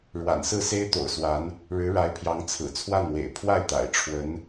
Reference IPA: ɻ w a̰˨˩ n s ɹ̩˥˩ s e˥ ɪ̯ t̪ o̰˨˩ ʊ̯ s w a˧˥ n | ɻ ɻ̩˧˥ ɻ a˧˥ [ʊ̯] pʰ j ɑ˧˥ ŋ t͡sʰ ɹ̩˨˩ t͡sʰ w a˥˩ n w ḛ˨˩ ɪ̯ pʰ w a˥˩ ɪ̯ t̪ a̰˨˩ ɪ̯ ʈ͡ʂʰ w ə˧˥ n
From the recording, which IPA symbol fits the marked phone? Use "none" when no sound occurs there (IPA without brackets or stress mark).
ɪ̯